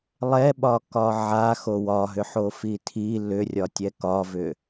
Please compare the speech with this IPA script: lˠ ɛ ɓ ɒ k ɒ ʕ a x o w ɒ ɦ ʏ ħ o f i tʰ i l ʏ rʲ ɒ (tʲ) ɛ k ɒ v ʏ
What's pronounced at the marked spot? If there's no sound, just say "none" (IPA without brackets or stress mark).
tʲ